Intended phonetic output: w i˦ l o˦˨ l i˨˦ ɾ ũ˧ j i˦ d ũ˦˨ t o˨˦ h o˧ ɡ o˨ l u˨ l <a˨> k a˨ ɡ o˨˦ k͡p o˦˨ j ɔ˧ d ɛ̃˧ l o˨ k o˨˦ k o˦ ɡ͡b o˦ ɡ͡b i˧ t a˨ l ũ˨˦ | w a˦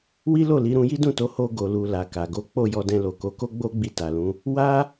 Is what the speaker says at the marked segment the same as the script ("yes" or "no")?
yes